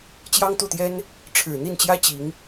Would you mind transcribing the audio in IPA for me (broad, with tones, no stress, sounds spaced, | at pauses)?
t͡ɕ j ɑ˥ ŋ t̪ u˥˩ t̪ j ɛ˥ n | ʈ͡ʂʰ ɻ̩˨˩ n̪ i˥˩ n t͡ɕ j ä˥ t͡ɕ i˧˥ ŋ